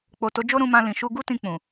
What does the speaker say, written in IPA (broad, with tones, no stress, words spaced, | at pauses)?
k͡po˨to˨˦d͡ʒo˦ɾũ˧ mã˧lĩ˨ ʃu˧ɡu˦tĩ˧ k͡pũ˨